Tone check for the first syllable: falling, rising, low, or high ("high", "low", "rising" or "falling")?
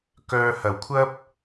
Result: low